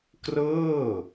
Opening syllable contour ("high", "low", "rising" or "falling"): falling